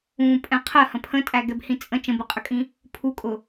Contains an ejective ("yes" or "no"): yes